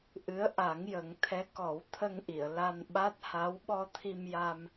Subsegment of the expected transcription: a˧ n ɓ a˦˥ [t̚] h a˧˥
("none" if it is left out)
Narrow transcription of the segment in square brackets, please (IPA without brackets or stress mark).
t̚